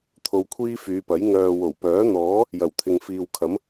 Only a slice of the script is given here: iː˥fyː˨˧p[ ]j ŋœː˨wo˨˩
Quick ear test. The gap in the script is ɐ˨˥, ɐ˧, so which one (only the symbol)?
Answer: ɐ˨˥